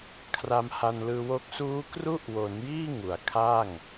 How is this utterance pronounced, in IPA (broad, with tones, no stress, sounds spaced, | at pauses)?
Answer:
kʰ r a˧ m h a˧ n l ɯː˧ w o˦˥ k̚ s uː˦˥ k r u˥˩ ʔ w o˩˦ n j iː˥˩ ŋ u˩˦ a̯ kʰ aː˥˩ ŋ